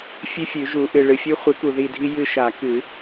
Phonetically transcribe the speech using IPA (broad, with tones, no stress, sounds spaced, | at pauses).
fʲ ʉ˦ fʲ ʉ˨˩˦ ʒ u˨˩˦ ʔ ɨ˨ ɭ ɨ˨ fʲ ʉ˦ χʷ ɨ˨˥ k u˨ ð i˦˨ dʱ i˦ j ɨ˦˨ ʃ a˨˩˦ k ɨ˨˩˦